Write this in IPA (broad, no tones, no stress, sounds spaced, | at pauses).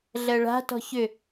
ɮ ɜ ɭ a̤ t ɔ̤ ç ʏ